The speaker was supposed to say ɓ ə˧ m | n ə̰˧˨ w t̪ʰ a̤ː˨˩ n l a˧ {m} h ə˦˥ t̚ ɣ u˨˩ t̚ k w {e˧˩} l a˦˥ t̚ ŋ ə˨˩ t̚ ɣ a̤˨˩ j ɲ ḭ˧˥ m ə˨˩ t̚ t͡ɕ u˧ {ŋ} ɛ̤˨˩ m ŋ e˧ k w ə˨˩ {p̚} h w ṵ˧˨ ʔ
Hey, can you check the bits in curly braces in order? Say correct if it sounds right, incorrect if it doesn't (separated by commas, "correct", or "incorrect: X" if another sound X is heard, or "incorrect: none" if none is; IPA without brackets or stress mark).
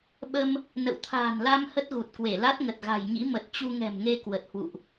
correct, correct, correct, incorrect: t̚